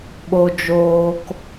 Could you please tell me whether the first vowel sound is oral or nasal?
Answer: oral